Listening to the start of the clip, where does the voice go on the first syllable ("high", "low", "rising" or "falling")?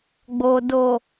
low